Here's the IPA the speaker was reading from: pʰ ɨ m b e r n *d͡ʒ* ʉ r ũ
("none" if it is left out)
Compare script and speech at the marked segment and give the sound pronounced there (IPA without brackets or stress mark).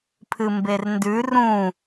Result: d